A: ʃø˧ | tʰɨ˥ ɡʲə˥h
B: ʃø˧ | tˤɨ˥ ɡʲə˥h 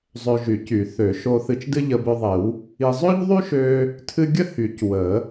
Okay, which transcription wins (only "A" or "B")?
A